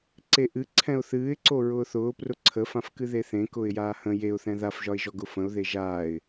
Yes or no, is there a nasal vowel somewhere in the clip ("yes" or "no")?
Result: yes